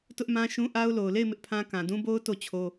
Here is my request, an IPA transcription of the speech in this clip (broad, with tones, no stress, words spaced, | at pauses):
tʊ˦ʔmã˦ʃũ˦ ʔa˦ʊ̯ lo˨ʊ̯le˦˨ɪ̯ mɪ˦ʔpʰã˦ kã˨dũ˦bo˦ʊ̯ to˦˨t͡ɕʰo˦